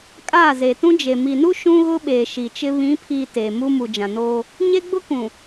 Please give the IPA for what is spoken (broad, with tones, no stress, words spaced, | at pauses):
kʼaː˦˨ze˨tũ˦d͡ʒe˨ mi˨nu˦ ʃũ˦ɣʊ˦ɓeː˨ ʃi˨t͡ʃɪ˦ βĩ˨˦pʰiː˨ teː˨mu˦ mu˨d͡ʒã˨noː˦ | ɲe˦ɡ͡bʊ˦kũ˨